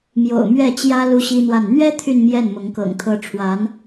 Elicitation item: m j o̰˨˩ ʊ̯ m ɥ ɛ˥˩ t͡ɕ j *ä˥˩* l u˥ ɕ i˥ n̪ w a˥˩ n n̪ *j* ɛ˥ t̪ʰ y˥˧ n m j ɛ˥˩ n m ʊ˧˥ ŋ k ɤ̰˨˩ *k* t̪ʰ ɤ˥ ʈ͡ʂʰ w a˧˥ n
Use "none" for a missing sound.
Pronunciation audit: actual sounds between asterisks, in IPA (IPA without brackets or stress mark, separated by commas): ä˥, ɥ, ŋ